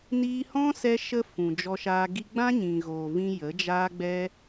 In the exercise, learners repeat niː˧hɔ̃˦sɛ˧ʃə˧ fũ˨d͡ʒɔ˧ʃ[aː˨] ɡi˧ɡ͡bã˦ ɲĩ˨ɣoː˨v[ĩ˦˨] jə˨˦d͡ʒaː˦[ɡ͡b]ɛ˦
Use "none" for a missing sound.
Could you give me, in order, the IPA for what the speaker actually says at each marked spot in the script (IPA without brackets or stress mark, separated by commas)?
aː˧, ĩ˧, ɡ͡b